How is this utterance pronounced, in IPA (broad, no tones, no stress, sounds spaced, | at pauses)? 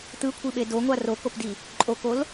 t̪ ɯ kʷʰ i ɓ e d o ŋʷ a r o k o p d i | ǃʼ o k o l